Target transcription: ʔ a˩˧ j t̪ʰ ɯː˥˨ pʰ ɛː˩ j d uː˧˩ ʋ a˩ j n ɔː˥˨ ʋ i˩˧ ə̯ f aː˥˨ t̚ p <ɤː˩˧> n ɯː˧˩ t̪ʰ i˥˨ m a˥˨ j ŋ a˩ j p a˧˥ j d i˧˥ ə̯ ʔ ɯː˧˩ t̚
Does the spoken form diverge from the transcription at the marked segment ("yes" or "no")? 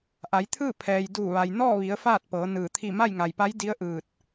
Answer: no